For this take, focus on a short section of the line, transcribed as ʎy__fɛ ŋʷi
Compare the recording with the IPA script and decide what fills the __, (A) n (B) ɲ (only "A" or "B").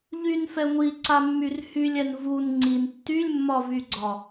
A